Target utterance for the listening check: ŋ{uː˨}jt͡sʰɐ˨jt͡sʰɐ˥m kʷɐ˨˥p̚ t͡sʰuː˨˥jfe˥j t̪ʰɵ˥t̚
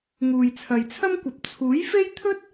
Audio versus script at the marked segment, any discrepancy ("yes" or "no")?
no